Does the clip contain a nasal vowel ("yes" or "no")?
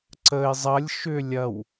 no